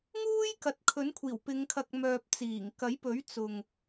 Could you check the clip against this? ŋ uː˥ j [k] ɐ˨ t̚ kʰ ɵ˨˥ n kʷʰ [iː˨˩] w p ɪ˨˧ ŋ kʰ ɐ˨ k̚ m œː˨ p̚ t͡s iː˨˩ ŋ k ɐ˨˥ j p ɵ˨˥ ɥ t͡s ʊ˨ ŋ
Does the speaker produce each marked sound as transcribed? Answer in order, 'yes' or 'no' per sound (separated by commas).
yes, yes